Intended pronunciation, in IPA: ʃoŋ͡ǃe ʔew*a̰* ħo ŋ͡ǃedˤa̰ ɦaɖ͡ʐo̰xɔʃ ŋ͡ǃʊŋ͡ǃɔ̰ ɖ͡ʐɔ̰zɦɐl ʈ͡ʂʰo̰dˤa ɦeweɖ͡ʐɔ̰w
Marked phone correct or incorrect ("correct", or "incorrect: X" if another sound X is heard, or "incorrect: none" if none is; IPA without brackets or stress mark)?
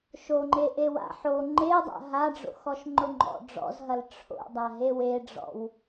correct